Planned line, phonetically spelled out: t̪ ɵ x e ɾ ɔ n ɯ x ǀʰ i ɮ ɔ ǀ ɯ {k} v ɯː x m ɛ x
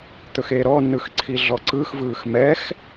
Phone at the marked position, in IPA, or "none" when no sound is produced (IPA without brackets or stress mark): x